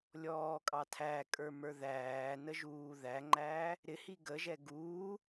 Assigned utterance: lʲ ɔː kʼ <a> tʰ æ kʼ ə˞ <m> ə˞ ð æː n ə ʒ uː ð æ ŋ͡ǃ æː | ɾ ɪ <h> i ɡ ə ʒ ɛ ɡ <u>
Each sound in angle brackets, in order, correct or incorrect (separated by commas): incorrect, correct, correct, incorrect